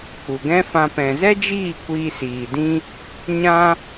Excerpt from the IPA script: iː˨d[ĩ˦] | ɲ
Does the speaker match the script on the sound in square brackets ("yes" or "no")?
yes